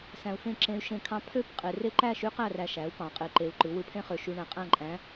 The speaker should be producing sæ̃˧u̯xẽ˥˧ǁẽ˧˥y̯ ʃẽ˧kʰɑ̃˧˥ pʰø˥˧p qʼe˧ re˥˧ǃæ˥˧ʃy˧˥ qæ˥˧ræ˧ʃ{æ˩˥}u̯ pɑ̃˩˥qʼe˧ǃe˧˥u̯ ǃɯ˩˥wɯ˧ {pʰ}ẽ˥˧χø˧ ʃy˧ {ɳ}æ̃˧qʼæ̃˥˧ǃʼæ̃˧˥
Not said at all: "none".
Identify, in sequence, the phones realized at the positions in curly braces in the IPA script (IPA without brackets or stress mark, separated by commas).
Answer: æ˩˥, pʰ, ɳ